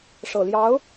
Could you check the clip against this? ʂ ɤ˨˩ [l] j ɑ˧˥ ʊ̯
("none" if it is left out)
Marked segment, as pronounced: l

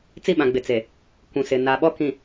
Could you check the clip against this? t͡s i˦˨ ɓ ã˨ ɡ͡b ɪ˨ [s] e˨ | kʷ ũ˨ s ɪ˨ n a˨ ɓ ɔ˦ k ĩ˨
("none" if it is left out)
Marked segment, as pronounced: t͡s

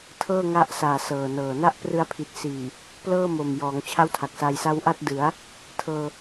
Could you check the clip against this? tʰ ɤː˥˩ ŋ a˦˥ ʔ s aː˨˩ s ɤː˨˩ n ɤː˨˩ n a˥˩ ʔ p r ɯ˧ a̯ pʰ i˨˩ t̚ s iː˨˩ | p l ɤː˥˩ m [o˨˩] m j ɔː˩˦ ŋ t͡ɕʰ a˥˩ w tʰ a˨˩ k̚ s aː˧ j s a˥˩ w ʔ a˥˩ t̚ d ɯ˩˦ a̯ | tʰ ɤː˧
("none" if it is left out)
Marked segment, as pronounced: o˨˩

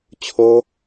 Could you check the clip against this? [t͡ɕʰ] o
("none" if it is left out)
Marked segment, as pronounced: t͡ɕʰ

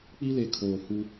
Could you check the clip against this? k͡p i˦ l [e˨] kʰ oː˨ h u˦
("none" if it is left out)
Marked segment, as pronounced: e˨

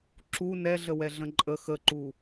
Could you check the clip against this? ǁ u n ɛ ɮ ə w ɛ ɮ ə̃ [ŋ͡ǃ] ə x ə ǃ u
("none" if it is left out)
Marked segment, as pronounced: ǃʼ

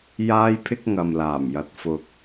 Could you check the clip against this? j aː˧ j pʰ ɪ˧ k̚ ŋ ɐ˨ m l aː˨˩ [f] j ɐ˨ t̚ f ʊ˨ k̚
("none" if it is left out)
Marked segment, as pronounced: m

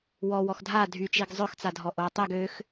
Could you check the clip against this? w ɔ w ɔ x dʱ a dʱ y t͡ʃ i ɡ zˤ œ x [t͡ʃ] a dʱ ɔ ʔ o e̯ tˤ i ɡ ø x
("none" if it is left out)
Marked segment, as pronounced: t͡s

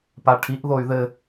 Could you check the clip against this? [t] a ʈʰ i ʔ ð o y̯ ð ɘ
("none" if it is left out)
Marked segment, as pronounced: p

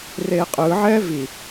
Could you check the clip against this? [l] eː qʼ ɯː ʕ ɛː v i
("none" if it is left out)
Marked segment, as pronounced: r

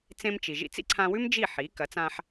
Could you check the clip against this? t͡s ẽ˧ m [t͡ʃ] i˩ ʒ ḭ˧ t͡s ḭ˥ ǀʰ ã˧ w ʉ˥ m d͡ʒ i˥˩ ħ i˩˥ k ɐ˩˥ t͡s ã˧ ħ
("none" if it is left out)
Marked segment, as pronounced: t͡ʃ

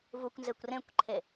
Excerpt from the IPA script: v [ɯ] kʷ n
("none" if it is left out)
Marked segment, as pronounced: u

